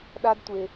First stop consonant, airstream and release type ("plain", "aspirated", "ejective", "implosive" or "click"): implosive